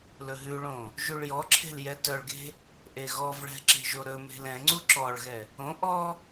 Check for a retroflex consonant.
present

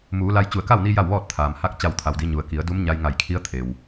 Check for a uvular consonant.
absent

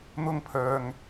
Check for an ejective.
absent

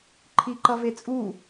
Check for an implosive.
absent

